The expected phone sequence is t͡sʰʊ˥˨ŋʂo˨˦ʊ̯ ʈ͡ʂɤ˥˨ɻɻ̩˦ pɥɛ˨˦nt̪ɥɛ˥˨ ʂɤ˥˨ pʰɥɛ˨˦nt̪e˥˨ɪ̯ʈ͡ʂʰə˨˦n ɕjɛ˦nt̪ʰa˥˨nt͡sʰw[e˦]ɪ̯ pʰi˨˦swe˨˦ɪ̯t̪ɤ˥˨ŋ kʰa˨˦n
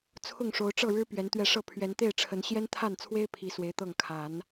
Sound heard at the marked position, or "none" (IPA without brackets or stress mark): e˦